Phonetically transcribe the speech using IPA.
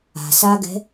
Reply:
a̤ s a ɡ ɛ̤

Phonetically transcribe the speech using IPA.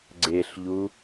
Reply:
ɡ͡ǀ e ɬ ʎ u

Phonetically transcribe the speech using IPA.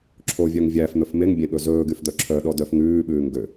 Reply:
ǁʰ o vʲ œ ŋ vʲ æ f n̪ ɵ f m e ŋ bʲ ẽ ɠ ɵ z ɵː ɡ y f d̪ œ ǁʰ œ ɗ ɔ d œ f ŋ ʉː ɓ ʉː ŋ ɡ ø

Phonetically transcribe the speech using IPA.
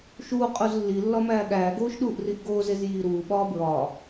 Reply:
ʃ uː qʼ u z lː i lː ɒ m æː ɠ æː ɡ oː ʃ ɗ uː ʔ r i ʔ ɡ oː z e z j iː ɾ uː ɓ ɒː b ɹ ɒː

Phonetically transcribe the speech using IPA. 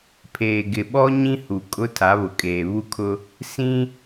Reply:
pʰ eː˨ ɡ ɪ˨ ɓ ɔ˦ ɲ ĩ˦ h u˨ kʼ ʊ˦ tʰ a˨˦ β ʊ˨ kʼ eː˨ β u˦ kʰ ʊ˦ | s ĩ˦

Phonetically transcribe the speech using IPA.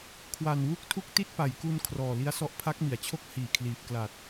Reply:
kʰ w a˨˩ n w u˥˩ k̚ tʰ u˥˩ k̚ t i˥˩ t̚ p a˩˦ j k u˧ n kʰ r ɔː˨˩ l i˦˥ a̯ s ɔ˦˥ ʔ pʰ a˦˥ k̚ m i˩˦ a̯ t͡ɕʰ o˥˩ k̚ h iː˨˩ kʰ l iː˨˩ p̚ k l a˨˩ t̚

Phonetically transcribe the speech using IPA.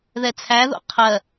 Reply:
ð ɛ t͡sʰ æ ð o̰ qʰ ɜ

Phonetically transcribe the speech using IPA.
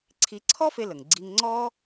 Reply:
ǀʰ i˧ ǀʰ ɔ˥ f e˧ l ə˩ ŋ ɡ͡ǀ i˧ ŋ ŋ͡ǀ ɔ˥

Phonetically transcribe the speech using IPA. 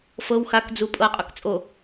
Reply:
f ɤ w x a k d͡z u pʼ ɤ qʼ ʊ k t͡sʼ o

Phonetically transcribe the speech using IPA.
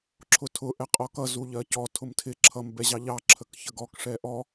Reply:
ǁʰ ʊ tʰ ʊ ʔ ɛ qʼ ɔ k ʌ z u ʎ ɜ c ɔ tʰ ʊ m tʰ ɪ ǁʰ ʌ m b ɛ ʑ ɑ ʎ ɑ ǁʰ ə k ç ə ɡ ɔ k ʂ ɛ ʔ ɔ

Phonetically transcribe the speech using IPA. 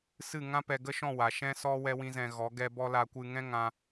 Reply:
s ɨ˦˨ ŋ ã˦ p ɛ˧ ɡ ə˦ ʃ ɔ̃˦˨ w a˨ ʃ ɛ̃˦ s ɔ˦ w ɛ˦ w ĩ˦ z ɛ̃˧ ɣ ɔ˨˦ ɡ ɛ˦ b ɔ˦ l a˧ kʷ ɨ˧ ŋ ɛ̃˦ ŋ ã˧

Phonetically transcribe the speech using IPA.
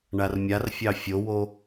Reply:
ɳ a r mʲ a r fʲ ɑ fʲ o w o

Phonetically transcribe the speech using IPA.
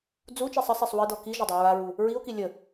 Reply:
d͡z u t͡ʃ i sˤ ə sˤ e sˤ w ɨ d ɔ k i ʒ ə dˤ i ɹ a ɹ u | ɹ i o̯ k i lʲ ə

